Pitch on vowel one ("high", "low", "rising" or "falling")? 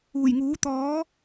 low